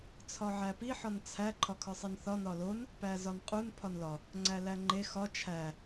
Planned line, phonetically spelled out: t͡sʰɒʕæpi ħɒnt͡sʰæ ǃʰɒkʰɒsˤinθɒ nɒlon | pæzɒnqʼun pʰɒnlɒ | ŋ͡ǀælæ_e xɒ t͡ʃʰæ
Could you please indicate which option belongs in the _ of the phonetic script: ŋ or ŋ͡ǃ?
ŋ͡ǃ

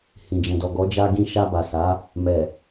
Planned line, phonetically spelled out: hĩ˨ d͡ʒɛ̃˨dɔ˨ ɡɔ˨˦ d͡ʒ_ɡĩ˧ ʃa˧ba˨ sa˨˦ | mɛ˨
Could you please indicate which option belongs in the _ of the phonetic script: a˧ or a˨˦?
a˧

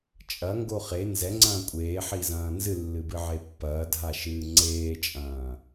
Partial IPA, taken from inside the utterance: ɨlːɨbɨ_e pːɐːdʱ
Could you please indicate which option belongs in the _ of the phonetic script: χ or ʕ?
ʕ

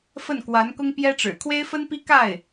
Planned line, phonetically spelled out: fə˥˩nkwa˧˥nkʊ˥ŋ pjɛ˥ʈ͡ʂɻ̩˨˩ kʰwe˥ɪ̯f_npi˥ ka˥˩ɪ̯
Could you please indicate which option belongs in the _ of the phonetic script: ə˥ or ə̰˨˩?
ə˥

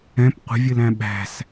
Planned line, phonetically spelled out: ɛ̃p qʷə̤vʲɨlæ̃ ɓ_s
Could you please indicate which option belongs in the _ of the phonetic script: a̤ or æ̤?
æ̤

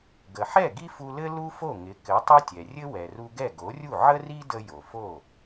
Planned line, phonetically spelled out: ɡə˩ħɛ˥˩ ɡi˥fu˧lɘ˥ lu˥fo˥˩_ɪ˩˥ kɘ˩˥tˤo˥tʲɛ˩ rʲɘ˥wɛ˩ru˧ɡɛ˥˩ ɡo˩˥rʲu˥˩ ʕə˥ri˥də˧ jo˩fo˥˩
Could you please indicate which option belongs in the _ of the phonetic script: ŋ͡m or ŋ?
ŋ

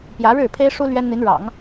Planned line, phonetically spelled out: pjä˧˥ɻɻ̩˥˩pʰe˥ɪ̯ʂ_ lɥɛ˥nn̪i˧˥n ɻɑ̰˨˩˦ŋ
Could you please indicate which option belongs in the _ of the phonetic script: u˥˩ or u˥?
u˥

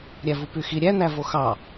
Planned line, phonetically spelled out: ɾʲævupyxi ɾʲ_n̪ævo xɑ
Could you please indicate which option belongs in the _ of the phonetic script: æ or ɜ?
æ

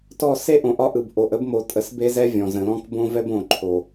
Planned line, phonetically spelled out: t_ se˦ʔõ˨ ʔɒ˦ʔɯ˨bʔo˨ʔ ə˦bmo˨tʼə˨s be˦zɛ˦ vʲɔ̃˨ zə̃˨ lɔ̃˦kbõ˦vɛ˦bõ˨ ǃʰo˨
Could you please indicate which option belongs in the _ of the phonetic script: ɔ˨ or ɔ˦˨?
ɔ˦˨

